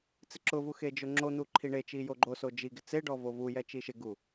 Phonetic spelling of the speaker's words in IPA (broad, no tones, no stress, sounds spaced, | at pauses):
t͡s ɪ ǁ ʊ v u x e d͡ʒ ʊ ŋ͡ǁ o n̪ u ǃʰ i ɳ e t͡ʃ i j o ɡ͡ǃ o s o d͡ʒ i ɡ ɪ t͡s e ɖ ɔ v o v u j ɛ t͡ʃ i ʃ ɪ ɡ u